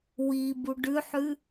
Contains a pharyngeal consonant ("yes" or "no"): yes